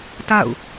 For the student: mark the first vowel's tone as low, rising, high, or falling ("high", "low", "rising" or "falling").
falling